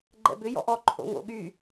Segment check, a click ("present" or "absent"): present